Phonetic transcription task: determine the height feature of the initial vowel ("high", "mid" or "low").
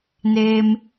mid